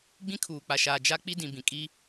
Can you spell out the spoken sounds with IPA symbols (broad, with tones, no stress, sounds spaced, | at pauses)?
ɡ͡b ĩ˦ kʰ uː˨ k͡p a˨ ʃ aː˨ d͡ʒ a˦ k͡p i˦ d ĩ˨ b ĩ˨ kʼ i˦